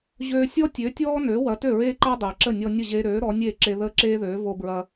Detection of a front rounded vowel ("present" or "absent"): present